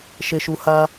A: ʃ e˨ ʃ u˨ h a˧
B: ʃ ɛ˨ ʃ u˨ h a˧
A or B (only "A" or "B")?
A